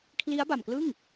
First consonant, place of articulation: velar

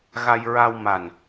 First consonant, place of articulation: velar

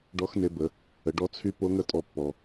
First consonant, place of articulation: retroflex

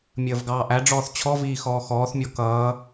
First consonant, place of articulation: labial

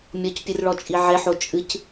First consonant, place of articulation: labial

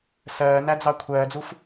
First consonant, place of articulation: alveolar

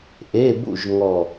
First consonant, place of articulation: glottal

